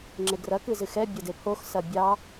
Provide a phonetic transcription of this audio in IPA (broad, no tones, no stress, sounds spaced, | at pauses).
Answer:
ŋ͡ǁ e ɡ r ɐ k ɨ z ɨ x ɛ bʲ ɐ d e pʰ o x s ɐ bʲ ɑ